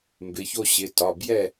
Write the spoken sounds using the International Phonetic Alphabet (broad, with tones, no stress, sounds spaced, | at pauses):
m b ɪ˩˧˩ ç o˥˨ ɕ ɪ˩˧˩ t ɒ˩˧˩ b j ɛ˥˨